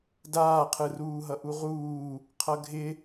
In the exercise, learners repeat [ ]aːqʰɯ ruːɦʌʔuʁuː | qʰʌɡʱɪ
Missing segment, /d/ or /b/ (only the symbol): d